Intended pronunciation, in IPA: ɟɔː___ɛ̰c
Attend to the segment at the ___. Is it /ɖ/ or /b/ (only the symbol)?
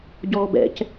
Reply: b